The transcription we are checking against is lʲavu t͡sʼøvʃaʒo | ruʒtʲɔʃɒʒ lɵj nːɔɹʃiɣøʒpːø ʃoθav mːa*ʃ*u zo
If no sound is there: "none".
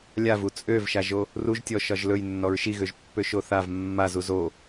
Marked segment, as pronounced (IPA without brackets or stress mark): z